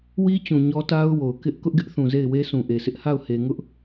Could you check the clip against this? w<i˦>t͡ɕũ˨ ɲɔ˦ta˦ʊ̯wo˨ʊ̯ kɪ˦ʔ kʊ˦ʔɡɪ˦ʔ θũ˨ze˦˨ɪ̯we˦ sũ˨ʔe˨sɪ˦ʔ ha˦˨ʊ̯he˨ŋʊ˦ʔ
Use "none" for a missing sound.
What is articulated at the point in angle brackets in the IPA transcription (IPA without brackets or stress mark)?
i˦